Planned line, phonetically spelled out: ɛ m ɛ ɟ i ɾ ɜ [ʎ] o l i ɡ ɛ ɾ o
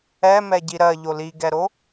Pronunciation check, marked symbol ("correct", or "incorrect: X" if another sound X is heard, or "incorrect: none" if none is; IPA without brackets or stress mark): correct